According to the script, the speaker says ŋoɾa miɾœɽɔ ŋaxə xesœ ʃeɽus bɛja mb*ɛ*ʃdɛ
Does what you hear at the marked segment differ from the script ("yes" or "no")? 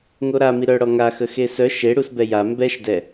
no